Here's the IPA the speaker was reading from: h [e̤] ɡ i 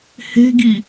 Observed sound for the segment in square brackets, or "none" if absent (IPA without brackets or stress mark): e̤